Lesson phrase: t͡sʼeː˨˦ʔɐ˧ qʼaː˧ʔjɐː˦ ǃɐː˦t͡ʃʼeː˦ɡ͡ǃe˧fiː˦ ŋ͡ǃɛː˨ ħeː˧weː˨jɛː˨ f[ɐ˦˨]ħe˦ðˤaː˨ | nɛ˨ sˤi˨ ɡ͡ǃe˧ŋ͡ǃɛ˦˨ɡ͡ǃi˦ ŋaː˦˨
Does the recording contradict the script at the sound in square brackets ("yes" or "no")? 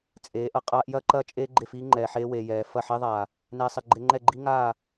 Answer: no